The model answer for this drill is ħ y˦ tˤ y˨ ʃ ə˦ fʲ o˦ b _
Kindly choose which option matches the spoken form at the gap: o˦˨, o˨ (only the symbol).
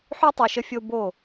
o˦˨